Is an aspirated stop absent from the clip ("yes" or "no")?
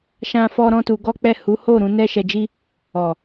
yes